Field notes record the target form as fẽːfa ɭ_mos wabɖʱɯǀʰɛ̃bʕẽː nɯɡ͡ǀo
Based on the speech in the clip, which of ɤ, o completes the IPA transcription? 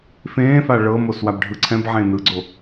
ɤ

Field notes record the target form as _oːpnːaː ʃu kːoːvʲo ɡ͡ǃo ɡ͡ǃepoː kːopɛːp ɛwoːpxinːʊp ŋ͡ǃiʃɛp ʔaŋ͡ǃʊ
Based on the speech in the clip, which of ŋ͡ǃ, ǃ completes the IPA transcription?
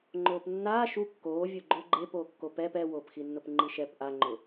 ŋ͡ǃ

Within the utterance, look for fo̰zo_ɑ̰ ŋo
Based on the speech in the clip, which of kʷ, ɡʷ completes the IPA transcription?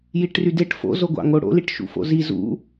ɡʷ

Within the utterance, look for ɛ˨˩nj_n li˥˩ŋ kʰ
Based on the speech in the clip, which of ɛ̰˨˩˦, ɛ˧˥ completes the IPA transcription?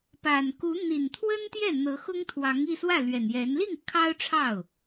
ɛ˧˥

